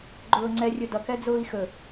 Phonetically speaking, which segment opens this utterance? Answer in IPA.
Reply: ɡ͡ǃ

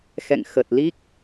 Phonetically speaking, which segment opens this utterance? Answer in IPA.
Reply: x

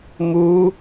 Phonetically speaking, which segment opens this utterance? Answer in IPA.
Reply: m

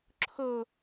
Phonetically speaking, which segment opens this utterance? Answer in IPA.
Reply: ǁʰ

